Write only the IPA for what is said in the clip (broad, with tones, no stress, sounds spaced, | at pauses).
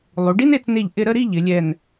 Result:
lˠ u˩˧ ɖ i˥ n e˧ t͡s n e˧˩ ʎ ʔ ɪ˧ ɾ ə˥˧ ɾ i˥˧ ʎ ɪ˩˧ lʲ ɛ˧˩ n